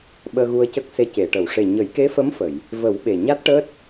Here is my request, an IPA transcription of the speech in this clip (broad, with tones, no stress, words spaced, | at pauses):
ɓəː˧ɣu˧ə̯cə˦˥k̚se˧ ce˨˩˨ʈə˨˩˨w ʂe˨˩ɲə˨˩˦jke˧˥fə˧˥m fə˨˩˨j | və˨˩˦w ɓe˨˩ ɲa˦˥t̚ʈəː˦˥t̚